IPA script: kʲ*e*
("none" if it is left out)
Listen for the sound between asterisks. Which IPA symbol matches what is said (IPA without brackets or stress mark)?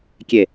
e